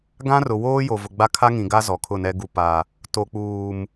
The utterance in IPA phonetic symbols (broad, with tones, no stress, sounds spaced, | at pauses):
ɡ ã˦ r ʊ˨ w oː˦ j o˨ v ʊ˨ ɡ͡b a˦ kʰ a˦ ŋ ĩ˨ ɡ a˦ z ɔ˨ kʰ ʊ˦˨ n ɛ˦ ɡ u˨ p a˨ | t o˨ k͡p uː˨ m